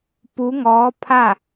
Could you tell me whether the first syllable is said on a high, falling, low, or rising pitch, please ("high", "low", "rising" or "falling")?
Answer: rising